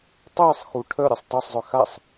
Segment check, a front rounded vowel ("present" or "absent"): present